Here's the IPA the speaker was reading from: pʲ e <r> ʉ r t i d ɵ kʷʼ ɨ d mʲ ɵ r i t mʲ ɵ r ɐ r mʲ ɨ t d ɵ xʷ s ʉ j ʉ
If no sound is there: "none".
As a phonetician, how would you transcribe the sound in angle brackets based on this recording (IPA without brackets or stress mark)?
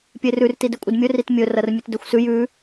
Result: r